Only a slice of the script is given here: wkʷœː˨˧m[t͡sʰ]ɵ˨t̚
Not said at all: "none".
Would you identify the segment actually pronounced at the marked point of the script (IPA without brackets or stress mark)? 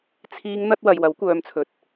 t͡sʰ